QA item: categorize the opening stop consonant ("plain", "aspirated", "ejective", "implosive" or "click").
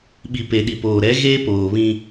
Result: implosive